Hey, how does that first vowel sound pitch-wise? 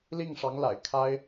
falling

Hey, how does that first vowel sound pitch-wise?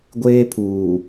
high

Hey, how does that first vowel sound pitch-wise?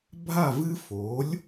falling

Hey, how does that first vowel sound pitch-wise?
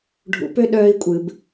rising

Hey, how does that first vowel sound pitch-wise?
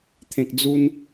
low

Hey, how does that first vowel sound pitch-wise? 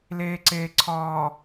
low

